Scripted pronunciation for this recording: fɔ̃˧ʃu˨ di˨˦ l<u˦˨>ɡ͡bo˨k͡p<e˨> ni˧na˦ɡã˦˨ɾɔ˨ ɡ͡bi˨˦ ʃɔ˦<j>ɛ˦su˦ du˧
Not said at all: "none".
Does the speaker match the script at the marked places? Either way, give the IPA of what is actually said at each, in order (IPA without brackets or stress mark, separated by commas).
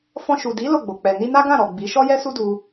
o˦˨, ɛ˨, j